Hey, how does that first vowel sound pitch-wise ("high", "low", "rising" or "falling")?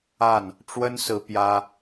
falling